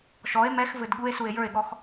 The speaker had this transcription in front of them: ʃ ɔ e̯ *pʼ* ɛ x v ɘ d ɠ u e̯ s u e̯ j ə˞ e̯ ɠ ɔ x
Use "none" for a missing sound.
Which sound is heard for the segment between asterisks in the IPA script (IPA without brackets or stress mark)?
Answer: m